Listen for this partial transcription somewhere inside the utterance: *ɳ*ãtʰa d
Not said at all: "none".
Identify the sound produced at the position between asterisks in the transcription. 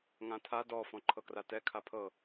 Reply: ŋ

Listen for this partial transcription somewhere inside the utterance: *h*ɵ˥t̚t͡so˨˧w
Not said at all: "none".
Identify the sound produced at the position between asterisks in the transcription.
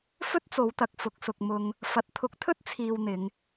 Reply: f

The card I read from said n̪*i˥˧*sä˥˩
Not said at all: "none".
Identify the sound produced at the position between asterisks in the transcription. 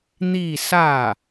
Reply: i˥˧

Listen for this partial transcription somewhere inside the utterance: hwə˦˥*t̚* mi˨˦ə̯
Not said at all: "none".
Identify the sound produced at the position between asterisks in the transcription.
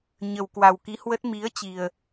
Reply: t̚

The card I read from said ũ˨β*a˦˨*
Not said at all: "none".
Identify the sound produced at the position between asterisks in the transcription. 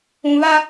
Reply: a˦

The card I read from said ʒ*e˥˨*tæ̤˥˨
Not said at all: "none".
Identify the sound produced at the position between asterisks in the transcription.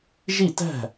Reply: i˥˨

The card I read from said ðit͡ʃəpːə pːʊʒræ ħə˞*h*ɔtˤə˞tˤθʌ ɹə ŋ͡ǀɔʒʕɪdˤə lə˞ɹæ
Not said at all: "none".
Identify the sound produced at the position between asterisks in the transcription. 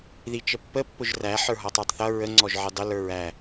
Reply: ɦ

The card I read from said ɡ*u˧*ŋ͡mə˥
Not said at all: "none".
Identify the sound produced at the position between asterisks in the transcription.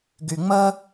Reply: y˧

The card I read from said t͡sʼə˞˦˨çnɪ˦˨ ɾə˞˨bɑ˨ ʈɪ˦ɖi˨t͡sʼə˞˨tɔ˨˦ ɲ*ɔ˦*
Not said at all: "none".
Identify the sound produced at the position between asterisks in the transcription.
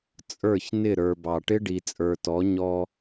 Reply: ɔ˦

